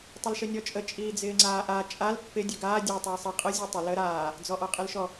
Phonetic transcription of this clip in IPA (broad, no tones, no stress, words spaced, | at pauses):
tˤəlʃənʲɔt͡ʃʼə t͡ʃʼiːd͡zɪːŋ͡ǀaːʔa t͡ʃʼal pːɪ dʲəɡaː dʲəːtˤ əːsˤɪ qʼə zʲɔtˤɪ lə ɾaː | d͡zɔʔɔqʼɪlʃɔ